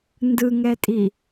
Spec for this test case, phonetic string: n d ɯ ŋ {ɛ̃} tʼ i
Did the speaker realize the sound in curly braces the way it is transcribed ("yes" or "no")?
no